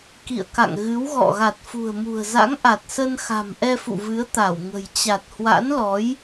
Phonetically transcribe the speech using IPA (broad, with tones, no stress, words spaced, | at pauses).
kḭ˧˨ə̯ka̰˧˨ŋ ɣɨ˨˦wɣɔ̰˧˨ ɣa˨˩t̚fṳ˨˩ə̯ mṳ˨˩ə̯za̰˧˥ŋʔa˨˩t̚sə˧n xa̤˨˩mʔɛ˧fṵ˧˨ vɨ˨˦ə̯t̪a˧˩wŋə̤˨˩j t͡ɕa˨˩t̚hwa̰˧˥nlɔ˨˦j